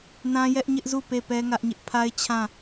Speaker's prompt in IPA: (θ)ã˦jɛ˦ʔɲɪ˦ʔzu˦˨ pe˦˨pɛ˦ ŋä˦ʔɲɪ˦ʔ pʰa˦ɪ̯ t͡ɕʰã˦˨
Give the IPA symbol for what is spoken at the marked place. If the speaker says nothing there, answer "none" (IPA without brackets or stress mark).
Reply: n